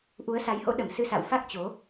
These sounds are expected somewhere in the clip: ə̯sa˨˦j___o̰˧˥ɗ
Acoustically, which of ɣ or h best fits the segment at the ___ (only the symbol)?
h